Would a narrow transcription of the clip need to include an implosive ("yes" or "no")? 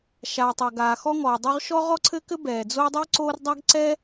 no